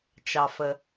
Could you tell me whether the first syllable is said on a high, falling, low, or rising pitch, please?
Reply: low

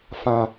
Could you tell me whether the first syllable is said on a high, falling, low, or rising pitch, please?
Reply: high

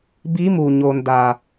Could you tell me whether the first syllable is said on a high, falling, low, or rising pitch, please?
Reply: rising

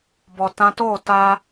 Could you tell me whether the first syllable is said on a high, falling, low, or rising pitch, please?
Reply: low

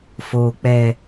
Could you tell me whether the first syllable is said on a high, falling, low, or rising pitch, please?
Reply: low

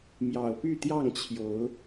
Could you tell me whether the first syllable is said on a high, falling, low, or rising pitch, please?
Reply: low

